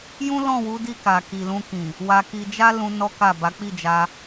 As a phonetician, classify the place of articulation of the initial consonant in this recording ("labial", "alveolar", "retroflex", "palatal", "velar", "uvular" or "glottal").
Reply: palatal